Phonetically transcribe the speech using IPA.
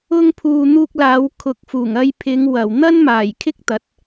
ʊ˥ ŋ pʰ uː˧ n̪ uː˧ k̚ l aː˨˧ w kʰ ʊ˨˥ k̚ f uː˨˩ ŋ ɐ˧ j pʰ ɪ˨˧ ŋ w ɐ˨˩ w n̪ ɐ˥ n m aː˨˩ j kʰ ɪ˥ k̚ t̪ ɐ˨˥ t̚

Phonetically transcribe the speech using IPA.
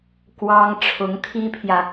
k w ɑ˥ ŋ ʈ͡ʂʰ ʊ˧˥ ŋ t̪ʰ i˥ pʰ j ä˨

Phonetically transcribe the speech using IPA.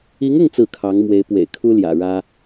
i˧˥ ŋ ʊ˥˧ ŋ t͡s ɹ̩˥˩ kʰ ɑ˧˥ ŋ m w e˧˥ ɪ̯ p w ḛ˨˩ ɪ̯ kʰ u˥ l j ä̰˨˩ ɻ ä˥

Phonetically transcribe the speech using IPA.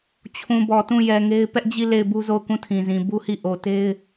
t͡ɕʰ ũ˨ b ɔ˨ t ũ˦˨ j ɛ˨ ŋ e˦ ɪ̯ p ɛ˦ ʔ d͡ʑ i˦˨ l e˦˨ ɪ̯ b u˦ z o˦˨ ʊ̯ k ũ˦˨ tʰ ĩ˨ z ĩ˨ b u˦ h i˦˨ ʔ o˨ t e˦ ɪ̯

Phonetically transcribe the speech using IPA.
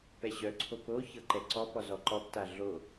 p ɛ ɕ œ ǀʰ o p o ç ɤ ǃ ɛ ǀ ɔ p ɔ z ɔ ǃ ɔ p t a ɮ o

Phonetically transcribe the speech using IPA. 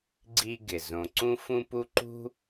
ɡ͡ǀ i˦ ɡ ɪ˩ z õ˨ ǀ ũ˦ f ũ˦ p u˦ ǃ ṳ˥

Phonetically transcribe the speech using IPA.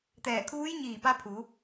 t̪ ɛː˧˩ kʰ uː˧˥ j ɲ iː˧˩ p a˧ pʰ u˩˧

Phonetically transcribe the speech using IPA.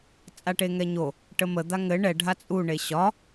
t͡sʼ a ʈ e ŋ ɛ ɲ o | ʈ ə m ə d̪ a ŋ ɘ ɳ ɛ ɖʱ a t͡sʼ u ɳ e ɕ ɒ

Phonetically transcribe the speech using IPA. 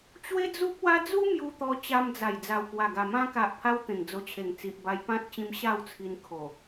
t͡ɕ w e˦ d͡z u˦ p̚ w a˦ d͡z u˦ m j u˧ t̪ ɔ˧ t͡ɕ a˧ m d͡z a˨˩ j d͡z a˨˩ w k w a˨˩ ɡ a˨˩ m ã˧ k a˨ ʔ pʰ a˧ w t̪ ẽ˨˩ ŋ d͡z o˧ t͡ɕʰ e˨˩ ŋ t͡s i˨ ʔ b a˧ j p ã˦ t̚ t͡ɕ ĩ˧ m ɕ a˥˧ w t͡sʰ i˧ n kʰ o˨˩

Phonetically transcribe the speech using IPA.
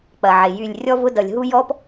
k͡p ɐ˨ ʕ e˨ j y˦˨ lʲ rʲ ɔ˦ v ʊ˦ d ʌ˨ lʲ ɦ u˦ j ɔ˦ p

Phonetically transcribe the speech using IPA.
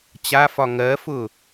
t͡ɕ a f ɒ ŋ ɜ f ʊ

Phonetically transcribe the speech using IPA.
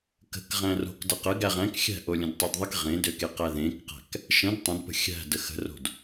k ə̤ k ʁ æ̃ r o̤ k d ə q ə ɡ æ ʁ æ̃ k xʲ æ̤ ʔ o lʲ ə̃ d tˤ e d ðˤ ə k ʁ ẽ d ø k e q æ ð ẽ k q æ̤ k | ʃ ə̃ d tˤ ə̃ d p ə̤ xʲ æ̤ d ə x ə̤ r o̤ d

